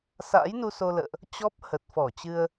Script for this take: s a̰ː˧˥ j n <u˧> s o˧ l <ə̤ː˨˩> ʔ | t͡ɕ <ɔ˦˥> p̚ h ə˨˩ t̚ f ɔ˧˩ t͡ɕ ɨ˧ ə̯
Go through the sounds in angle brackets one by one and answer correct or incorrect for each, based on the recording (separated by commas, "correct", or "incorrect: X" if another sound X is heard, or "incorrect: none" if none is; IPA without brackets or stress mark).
correct, incorrect: ə̰ː˧˨, correct